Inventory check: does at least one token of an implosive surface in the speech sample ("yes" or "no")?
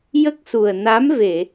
no